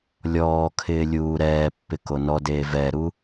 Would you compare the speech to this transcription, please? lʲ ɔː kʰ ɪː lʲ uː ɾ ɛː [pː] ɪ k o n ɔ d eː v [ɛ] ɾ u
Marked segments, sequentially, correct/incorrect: correct, correct

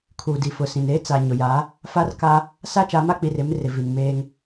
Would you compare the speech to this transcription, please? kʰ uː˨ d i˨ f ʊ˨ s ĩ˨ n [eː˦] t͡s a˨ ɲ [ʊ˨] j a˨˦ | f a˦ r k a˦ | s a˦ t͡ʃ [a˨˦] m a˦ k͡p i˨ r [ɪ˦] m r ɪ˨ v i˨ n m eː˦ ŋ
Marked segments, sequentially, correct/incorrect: correct, correct, correct, incorrect: ɪ˨˦

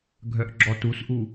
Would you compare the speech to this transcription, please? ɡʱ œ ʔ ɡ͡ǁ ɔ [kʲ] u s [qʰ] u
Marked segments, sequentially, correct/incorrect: incorrect: t, incorrect: ʔ

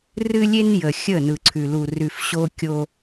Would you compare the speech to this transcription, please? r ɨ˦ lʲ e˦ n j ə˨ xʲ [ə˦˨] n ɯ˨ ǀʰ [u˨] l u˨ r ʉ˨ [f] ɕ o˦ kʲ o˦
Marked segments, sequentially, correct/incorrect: correct, incorrect: ʉ˨, correct

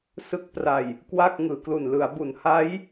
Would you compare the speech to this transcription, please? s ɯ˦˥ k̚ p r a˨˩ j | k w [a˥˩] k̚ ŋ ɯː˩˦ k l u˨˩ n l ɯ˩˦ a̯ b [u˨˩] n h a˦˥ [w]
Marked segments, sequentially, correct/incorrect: correct, incorrect: u˩˦, incorrect: j

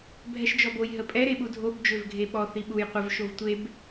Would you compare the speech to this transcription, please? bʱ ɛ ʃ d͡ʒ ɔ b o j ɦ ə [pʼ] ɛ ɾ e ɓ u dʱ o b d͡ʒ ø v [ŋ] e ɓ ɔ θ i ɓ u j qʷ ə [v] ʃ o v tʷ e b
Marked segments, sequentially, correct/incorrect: correct, incorrect: ɡʱ, correct

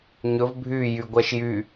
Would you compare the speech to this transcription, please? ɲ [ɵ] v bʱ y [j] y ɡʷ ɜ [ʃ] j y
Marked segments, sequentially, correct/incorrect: correct, correct, correct

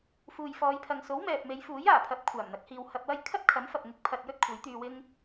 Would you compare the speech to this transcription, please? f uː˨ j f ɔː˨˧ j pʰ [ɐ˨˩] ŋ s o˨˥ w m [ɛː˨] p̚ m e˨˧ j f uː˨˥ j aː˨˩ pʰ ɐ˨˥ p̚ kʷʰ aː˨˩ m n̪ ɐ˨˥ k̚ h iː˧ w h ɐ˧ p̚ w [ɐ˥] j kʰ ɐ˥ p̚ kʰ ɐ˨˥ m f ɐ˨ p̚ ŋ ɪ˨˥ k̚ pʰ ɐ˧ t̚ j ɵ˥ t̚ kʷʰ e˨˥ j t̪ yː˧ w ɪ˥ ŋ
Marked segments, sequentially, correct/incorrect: incorrect: ɐ˨, correct, correct

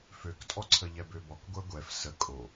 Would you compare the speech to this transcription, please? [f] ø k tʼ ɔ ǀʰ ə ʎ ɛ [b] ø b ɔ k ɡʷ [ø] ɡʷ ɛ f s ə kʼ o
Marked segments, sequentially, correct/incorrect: correct, correct, incorrect: ɛ

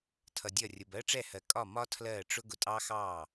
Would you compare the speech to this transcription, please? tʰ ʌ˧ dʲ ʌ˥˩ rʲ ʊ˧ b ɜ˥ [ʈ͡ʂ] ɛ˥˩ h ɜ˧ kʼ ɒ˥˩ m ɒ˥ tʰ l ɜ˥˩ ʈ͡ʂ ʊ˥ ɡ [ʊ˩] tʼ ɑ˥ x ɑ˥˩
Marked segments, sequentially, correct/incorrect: correct, incorrect: ʊ˧

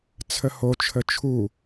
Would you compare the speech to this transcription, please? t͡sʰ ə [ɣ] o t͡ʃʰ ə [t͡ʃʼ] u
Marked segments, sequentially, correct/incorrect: incorrect: h, incorrect: t͡ʃʰ

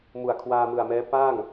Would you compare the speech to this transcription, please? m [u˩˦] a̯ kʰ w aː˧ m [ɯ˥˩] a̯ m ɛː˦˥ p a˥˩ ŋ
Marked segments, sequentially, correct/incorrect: incorrect: u˨˩, incorrect: ɯ˨˩

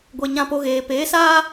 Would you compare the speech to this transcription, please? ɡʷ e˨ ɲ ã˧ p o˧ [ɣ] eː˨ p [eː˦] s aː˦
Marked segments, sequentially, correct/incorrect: correct, incorrect: eː˨˦

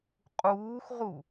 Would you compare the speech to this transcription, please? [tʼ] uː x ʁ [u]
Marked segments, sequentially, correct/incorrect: incorrect: qʼ, correct

